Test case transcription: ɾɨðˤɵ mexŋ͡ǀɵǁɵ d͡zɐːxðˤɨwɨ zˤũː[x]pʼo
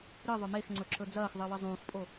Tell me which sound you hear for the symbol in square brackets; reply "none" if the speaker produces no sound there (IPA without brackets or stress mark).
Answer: x